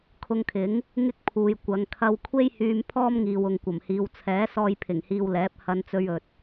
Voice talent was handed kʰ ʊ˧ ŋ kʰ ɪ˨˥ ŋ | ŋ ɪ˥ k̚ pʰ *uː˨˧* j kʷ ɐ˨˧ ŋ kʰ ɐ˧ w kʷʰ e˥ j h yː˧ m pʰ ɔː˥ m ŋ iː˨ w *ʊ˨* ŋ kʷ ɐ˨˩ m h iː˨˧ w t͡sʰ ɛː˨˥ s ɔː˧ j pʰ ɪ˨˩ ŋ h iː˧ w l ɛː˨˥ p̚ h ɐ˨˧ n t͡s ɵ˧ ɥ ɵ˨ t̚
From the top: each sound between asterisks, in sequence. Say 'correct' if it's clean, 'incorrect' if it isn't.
incorrect: uː˨, correct

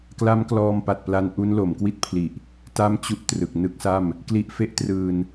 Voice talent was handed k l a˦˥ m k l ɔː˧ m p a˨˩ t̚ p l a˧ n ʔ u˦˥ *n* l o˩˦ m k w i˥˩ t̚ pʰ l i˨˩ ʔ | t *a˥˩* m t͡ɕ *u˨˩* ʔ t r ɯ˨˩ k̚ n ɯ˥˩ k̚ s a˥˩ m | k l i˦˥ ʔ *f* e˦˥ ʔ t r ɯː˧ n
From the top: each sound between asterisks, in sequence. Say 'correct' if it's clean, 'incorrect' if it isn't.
correct, correct, incorrect: u˥˩, correct

